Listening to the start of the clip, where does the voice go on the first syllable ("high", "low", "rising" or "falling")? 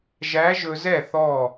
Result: rising